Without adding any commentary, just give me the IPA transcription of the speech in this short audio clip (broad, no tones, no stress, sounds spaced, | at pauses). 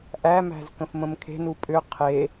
ʔ æ m æ̤ z k ə̃ f m ə̃ m kʰ e̤ n u pʼ ʏ qʰ e